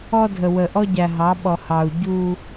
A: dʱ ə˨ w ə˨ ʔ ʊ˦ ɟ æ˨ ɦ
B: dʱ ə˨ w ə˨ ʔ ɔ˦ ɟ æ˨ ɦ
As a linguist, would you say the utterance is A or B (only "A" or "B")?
B